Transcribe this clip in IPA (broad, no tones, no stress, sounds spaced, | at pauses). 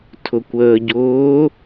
tʰ ʊ kʷ əː ɟ ʊː